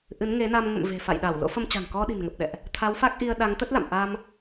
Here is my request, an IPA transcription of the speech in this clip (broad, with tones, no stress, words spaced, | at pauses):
ʔɨ˨˦nŋe˨˦na˧m ŋə̰˧˨m ve̤˨˩fa̰˧˨j ɗa˧˩w lo̰˧˥fə˧m t͡ɕa̤˨˩ŋkɔ˧ɗi̤˨˩nŋə˨˩p̚ ɗɛ̰˧˨ʔ | t̪ʰa˨˦wfa˦˥k̚ʔi˧ə̯ɗa˨˦ŋ t̪ə˦˥t̚la̰˧˨m ʔa˧m